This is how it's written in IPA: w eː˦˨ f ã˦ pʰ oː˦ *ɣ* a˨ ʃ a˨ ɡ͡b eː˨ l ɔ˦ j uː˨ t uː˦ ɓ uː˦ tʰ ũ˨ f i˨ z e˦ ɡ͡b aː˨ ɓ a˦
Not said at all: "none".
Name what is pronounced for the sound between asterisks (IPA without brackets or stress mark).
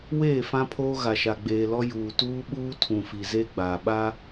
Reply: ɣ